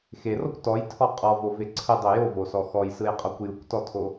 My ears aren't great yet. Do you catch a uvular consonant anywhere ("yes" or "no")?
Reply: yes